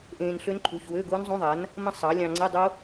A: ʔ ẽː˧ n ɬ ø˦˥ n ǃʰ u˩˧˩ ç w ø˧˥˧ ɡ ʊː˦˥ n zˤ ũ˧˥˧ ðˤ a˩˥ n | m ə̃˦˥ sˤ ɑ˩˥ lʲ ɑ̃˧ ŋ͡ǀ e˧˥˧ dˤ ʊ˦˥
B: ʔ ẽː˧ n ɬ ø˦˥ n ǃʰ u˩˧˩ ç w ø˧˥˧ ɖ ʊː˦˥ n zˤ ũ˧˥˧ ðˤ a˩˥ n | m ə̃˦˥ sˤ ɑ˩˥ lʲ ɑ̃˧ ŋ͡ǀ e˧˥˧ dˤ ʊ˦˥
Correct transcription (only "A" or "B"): A